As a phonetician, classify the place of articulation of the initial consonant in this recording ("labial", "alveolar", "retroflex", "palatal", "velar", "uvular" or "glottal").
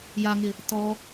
palatal